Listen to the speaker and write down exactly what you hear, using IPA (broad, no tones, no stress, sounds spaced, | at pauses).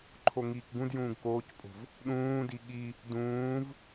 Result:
ǃʰ o ŋ iː k ɡ ũ d j ũː ɡ k oː c pʼ o̤ v | ɗ ũː d i ɠ i | d ũː v